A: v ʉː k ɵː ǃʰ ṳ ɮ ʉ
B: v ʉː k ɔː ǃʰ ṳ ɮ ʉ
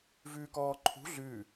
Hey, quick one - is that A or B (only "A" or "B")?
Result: B